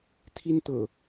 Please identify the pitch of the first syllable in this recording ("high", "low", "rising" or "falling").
high